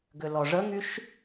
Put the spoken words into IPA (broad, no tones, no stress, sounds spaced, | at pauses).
ɡ ʏ l ɔ ʐ ə ŋ y ʃ